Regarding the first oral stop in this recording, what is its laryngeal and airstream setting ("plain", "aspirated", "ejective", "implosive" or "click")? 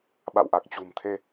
implosive